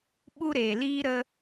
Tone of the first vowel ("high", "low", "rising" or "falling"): high